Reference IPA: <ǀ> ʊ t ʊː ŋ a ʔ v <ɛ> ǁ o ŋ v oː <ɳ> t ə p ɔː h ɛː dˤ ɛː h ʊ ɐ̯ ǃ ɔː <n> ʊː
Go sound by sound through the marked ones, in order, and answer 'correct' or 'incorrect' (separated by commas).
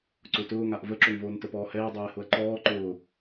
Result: correct, incorrect, incorrect, incorrect